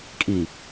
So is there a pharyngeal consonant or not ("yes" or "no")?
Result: no